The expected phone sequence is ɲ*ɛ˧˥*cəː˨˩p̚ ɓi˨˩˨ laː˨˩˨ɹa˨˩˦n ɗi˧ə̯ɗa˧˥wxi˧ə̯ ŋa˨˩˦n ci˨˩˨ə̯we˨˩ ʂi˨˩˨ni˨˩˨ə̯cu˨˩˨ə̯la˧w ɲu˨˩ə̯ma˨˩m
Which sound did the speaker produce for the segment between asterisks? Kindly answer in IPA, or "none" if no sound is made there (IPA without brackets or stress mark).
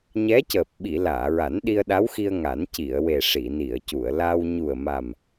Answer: ɛ˧˥